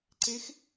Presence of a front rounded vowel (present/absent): absent